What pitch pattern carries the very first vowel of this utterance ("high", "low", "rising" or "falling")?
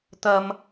high